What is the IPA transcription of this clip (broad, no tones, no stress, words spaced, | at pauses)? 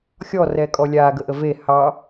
xʲɔrɛkʼɔ lʲaɡəʔə ve hɑ